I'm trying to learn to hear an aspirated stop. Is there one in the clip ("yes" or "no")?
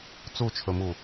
yes